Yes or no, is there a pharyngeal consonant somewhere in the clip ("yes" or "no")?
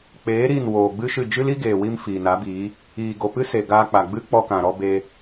no